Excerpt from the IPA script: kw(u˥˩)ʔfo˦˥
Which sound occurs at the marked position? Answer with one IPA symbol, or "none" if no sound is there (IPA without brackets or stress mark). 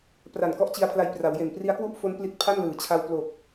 u˥˩